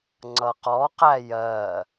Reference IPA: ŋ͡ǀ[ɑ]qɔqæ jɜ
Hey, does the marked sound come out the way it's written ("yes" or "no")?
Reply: no